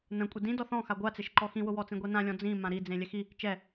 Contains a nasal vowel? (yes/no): yes